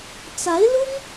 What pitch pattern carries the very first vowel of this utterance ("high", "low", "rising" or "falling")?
rising